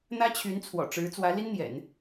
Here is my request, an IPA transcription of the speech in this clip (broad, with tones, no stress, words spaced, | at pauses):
n̪ä˥t͡ɕʰy˧˥nt͡sʰwɔ̰˨˩ʈ͡ʂɻ̩˧˥ t͡swä˧˥li˥nn̪jɛ̰˨˩˦n